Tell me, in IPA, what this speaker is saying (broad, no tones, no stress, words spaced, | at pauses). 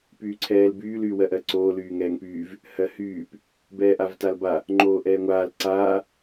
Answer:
pyːǀʰɛːlbyːl yːwɜʔɜǀoː lyːŋɛːŋpyːv | hɜhyːp | bɛːʔavtalba | ŋ͡ǃoːʔɛːŋʷaːl ǀaː